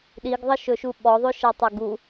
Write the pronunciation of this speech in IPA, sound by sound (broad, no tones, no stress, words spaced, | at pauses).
ɗiɡðˤəʃɵʃu ɓɔðˤøʃɜtˤo ɡu